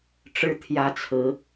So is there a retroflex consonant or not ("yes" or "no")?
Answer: yes